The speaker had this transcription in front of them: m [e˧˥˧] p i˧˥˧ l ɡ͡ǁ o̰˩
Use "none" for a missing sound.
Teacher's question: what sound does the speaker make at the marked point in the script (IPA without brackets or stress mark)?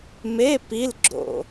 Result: e˧˥˧